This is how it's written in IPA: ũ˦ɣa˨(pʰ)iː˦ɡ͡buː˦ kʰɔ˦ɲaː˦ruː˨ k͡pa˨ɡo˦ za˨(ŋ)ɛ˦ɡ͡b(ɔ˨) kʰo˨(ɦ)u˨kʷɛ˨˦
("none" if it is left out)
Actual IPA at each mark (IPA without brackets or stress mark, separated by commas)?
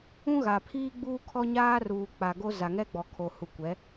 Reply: pʰ, ŋ, ɔ˨, h